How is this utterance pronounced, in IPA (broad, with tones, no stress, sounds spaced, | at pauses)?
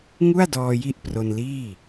ŋ u˥˩ a̯ d ɔː˧ j i˦˥ ʔ p r o˧ n l iː˥˩